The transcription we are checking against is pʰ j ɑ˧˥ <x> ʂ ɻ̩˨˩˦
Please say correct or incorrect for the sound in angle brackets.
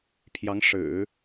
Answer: incorrect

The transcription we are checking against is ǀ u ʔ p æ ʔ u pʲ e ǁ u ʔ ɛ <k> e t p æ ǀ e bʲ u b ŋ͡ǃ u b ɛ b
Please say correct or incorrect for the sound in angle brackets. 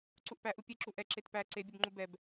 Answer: incorrect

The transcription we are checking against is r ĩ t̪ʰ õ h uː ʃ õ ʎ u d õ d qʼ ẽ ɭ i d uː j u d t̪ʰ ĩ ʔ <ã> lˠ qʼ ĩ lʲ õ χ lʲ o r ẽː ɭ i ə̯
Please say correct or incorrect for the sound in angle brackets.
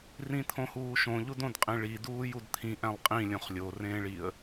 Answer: incorrect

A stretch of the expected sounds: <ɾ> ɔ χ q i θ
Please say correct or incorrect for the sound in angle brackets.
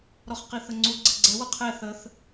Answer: correct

